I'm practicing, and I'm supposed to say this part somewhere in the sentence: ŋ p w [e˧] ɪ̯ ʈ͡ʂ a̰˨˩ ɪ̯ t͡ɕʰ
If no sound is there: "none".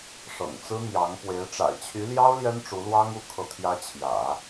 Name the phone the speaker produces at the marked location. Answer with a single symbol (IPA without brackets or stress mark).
e˧˥